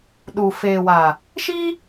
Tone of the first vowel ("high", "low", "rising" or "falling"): low